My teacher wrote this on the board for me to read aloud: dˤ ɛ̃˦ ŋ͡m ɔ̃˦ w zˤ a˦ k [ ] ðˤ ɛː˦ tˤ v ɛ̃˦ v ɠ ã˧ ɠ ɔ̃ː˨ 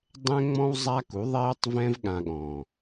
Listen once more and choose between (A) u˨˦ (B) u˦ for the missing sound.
A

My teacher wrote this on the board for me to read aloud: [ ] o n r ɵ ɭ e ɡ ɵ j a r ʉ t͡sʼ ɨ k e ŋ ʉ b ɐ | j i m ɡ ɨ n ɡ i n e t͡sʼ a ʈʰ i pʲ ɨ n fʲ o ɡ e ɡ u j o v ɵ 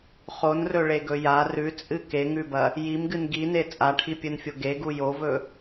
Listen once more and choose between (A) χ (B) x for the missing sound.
A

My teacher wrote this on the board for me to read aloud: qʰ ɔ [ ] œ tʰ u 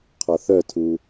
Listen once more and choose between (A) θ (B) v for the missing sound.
A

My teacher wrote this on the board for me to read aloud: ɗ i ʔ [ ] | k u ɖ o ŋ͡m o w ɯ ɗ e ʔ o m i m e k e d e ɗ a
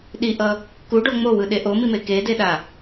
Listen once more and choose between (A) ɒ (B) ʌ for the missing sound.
B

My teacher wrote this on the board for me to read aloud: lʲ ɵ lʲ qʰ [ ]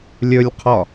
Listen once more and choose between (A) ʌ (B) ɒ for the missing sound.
B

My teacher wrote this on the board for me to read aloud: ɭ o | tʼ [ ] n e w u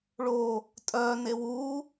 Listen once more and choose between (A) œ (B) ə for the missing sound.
A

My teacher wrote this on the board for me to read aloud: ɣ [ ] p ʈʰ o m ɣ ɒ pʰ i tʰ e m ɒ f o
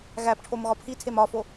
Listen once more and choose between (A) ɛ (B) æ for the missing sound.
B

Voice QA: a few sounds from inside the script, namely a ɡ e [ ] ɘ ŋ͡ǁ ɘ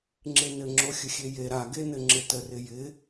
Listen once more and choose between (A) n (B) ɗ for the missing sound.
A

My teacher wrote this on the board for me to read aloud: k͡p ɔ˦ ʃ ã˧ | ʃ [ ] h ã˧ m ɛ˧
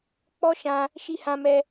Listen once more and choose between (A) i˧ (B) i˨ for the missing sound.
A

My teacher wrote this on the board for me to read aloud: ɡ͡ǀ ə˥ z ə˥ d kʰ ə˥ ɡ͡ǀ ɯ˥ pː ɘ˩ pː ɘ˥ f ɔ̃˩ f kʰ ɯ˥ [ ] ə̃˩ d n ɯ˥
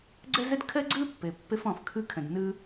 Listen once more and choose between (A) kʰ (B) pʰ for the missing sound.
A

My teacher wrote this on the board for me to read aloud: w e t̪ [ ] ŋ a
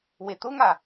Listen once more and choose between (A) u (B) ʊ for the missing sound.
B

